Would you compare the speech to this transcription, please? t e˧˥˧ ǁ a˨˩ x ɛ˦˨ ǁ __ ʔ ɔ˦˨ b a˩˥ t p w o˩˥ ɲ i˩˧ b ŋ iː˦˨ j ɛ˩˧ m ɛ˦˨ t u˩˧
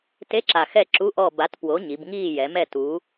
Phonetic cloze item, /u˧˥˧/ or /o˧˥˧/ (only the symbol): u˧˥˧